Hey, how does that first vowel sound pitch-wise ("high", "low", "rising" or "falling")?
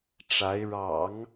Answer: rising